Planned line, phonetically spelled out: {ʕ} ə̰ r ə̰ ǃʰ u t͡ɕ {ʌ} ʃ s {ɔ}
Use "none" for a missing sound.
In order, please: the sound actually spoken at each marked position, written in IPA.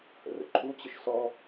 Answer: h, ə, ɔ

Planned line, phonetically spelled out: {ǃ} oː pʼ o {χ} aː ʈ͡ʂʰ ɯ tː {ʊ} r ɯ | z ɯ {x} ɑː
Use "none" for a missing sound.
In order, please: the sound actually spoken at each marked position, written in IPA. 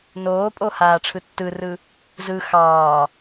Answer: n, h, ɯ, x

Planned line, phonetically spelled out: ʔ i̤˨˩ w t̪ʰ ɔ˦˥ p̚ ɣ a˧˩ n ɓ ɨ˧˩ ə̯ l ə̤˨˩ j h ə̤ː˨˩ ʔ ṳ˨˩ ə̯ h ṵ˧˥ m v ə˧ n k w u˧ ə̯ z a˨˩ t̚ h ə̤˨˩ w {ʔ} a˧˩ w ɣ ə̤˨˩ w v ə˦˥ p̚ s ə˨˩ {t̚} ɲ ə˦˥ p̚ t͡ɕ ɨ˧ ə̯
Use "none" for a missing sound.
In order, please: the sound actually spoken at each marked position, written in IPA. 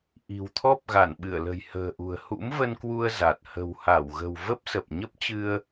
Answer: h, p̚

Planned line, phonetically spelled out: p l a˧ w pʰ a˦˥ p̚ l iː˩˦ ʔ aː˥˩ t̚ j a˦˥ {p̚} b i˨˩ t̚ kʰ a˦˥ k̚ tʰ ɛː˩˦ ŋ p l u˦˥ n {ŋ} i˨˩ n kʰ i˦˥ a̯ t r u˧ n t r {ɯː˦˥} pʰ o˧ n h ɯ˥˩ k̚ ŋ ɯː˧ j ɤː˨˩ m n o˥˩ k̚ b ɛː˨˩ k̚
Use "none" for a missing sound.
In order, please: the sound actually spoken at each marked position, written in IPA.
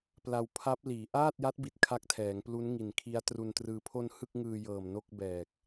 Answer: t̚, ŋ, ɯː˧

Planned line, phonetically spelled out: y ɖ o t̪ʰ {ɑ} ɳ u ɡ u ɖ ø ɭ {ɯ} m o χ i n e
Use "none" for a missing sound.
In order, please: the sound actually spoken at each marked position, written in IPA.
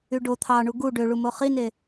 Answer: ɑ, u

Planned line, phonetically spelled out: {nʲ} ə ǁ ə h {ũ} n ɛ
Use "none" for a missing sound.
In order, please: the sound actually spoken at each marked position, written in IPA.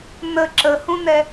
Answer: n, ũ

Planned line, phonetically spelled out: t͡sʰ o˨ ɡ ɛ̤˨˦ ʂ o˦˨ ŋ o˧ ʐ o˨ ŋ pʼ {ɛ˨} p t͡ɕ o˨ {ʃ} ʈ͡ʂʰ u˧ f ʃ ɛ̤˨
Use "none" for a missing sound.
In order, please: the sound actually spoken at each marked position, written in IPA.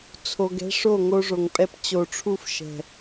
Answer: ɛ˧, none

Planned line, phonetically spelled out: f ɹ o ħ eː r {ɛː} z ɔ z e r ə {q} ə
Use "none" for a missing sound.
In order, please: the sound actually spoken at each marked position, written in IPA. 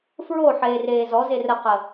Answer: eː, q

